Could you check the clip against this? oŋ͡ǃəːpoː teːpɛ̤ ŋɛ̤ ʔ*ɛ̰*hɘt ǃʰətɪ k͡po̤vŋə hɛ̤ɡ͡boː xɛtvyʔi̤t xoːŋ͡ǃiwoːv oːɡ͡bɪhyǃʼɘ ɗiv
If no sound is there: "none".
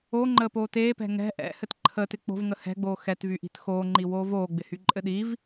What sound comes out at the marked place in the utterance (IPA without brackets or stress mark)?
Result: ɛ̰